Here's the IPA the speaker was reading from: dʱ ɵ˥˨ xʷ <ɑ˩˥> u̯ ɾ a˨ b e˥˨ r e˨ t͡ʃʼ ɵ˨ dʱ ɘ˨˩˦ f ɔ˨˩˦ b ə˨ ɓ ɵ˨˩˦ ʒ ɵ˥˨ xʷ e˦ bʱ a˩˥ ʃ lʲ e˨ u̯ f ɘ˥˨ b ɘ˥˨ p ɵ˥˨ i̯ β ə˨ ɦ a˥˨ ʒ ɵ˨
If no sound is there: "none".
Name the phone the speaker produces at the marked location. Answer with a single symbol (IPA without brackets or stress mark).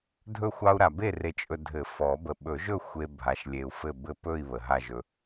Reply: ɑ˦